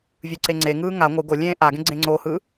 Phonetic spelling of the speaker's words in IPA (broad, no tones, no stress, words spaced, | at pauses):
vʲɯǀeŋ͡ǀeŋɯː ŋa ŋʷɯ ɡolʲẽː ʔaɡẽ ɡ͡ǀẽŋ͡ǀohɯ